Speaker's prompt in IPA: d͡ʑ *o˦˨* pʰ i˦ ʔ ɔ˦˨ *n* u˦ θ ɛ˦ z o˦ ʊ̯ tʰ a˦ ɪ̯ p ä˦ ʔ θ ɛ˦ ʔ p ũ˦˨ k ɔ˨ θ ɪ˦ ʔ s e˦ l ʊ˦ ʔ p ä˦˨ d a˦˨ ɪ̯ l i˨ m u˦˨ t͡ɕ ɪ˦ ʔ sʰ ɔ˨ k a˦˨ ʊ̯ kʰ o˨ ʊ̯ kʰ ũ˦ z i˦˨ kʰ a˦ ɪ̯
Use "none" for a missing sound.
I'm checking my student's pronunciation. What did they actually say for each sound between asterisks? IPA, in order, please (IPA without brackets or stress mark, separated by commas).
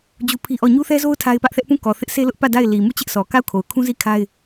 u˦˨, ɲ